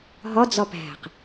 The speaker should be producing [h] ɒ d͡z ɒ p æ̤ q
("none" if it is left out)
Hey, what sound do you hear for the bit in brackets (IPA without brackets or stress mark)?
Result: ɦ